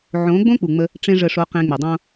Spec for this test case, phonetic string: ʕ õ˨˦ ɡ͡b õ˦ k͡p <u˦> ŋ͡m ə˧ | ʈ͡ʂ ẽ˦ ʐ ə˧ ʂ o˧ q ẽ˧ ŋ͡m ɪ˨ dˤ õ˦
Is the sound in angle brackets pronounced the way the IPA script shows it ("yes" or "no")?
no